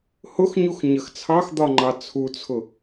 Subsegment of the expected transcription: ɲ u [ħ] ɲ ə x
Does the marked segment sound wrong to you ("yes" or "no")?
yes